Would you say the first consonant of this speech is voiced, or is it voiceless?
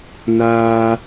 voiced